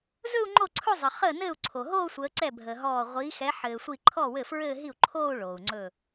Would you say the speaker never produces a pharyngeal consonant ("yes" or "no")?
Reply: no